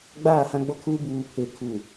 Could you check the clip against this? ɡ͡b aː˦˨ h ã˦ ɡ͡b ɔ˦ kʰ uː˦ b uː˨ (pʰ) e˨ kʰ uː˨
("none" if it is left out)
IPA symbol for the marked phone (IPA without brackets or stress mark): pʰ